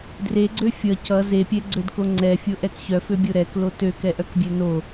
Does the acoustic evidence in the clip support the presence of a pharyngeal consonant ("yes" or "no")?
no